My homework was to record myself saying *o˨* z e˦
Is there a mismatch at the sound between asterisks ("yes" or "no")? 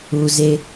yes